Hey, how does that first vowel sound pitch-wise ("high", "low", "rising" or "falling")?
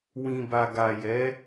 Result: low